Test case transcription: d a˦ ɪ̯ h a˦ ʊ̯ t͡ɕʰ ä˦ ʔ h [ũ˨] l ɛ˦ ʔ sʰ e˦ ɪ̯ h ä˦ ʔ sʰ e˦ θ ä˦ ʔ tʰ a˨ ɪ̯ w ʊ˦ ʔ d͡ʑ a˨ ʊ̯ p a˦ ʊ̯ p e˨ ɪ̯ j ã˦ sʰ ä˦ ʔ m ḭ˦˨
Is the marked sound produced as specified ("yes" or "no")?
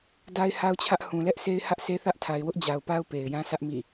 yes